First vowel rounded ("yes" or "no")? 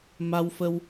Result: no